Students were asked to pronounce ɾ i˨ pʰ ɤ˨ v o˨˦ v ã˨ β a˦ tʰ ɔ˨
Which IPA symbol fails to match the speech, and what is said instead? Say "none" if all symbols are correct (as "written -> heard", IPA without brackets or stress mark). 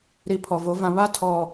ɤ˨ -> ɔ˨